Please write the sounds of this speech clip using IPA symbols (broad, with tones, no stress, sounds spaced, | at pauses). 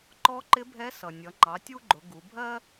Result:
ǃ ɔ˧˥ ǃ ɪ˧˥ bʱ ɛ˧˥ s ʌ˩ nʲ ʌ˩˧ ŋ͡ǃ ɑ˩˧ tʲ u˥ ɡ͡ǃ ʊ˩˧ ɡ u˩˧ bʱ ɜ˥